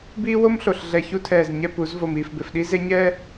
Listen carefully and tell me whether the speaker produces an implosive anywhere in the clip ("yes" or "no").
yes